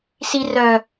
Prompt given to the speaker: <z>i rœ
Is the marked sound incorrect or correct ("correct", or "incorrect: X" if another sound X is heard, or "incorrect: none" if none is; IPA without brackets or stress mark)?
incorrect: s